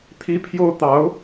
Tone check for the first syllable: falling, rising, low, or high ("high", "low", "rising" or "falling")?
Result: high